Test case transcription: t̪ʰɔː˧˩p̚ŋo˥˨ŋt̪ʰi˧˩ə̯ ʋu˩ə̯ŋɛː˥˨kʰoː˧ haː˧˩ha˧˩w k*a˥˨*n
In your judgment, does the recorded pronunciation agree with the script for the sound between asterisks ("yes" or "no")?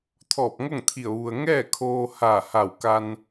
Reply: no